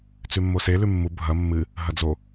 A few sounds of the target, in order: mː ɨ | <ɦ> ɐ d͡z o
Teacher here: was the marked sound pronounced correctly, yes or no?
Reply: yes